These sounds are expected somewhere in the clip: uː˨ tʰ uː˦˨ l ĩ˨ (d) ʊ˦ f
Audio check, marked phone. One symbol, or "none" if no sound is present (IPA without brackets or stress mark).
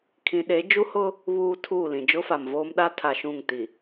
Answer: d͡ʒ